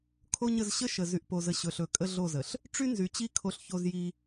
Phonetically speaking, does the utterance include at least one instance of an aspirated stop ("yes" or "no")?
yes